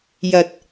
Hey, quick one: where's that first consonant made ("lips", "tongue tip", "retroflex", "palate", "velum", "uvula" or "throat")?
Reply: palate